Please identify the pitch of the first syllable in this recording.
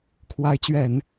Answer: rising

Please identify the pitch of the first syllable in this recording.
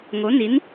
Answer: rising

